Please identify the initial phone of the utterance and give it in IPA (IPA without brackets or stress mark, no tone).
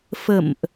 f